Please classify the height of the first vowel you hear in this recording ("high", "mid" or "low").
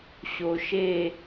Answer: mid